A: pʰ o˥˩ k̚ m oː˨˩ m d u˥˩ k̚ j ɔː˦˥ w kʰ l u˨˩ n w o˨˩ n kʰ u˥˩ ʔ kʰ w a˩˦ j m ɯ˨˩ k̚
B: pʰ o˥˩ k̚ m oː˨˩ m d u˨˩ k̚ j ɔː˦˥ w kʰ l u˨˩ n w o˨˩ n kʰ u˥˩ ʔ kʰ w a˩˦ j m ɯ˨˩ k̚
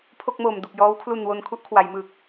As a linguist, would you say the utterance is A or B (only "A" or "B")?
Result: B